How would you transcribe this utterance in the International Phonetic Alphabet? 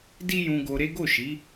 d i˦ j ũ˧ ɡ o˧ ɾ e˦ ɡ o˦˨ ʃ i˨˦

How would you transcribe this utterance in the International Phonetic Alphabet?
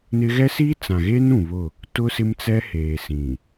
n ɪ˦ ɣ ɛ˦ s iː˦ t͡s ã˨ ɣ eː˦ n ũ˨ β ʊ˦˨ | t ʊ˦ s ɪ˦ m t͡s ɛ˦ h eː˨ s ĩ˨

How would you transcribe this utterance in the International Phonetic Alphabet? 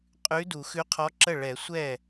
qʼ ʉ˧˥ d u˨˩˦ x ʉ˧˥ qʰ ɔ˧˥ ǁ ə˥˩ ɭ ɛ˨˩˦ sʷ ɛ˥˩

